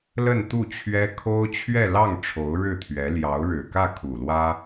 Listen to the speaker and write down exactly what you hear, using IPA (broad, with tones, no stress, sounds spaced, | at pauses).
l ə˥˧ n t̪ u˥˩ t͡ɕʰ ɥ ɛ˥ kʰ o˥ ʊ̯ t͡ɕʰ ɥ ɛ˥˧ l ɑ˥˩ ŋ ʈ͡ʂʰ o˧˥ ʊ̯ ɻ ɻ̩˥˩ t̪ʰ ɥ ɛ˧˥ l j ɑ˧˥ ʊ̯ ɻ ɻ̩˨˩ k ä˥˩ kʰ u˨˩ l w ä˥